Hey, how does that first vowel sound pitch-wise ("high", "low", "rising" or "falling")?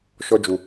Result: high